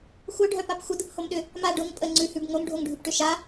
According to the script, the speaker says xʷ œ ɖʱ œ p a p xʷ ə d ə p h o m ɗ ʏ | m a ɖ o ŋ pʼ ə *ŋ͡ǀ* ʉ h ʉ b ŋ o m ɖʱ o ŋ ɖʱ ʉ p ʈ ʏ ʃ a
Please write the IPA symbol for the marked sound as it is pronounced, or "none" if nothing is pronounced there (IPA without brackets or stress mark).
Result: ŋ͡ǀ